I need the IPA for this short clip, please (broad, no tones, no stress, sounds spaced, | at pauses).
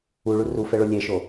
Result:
u ɭ u r u f ɛ ɭ o lʲ ɛ ʃ o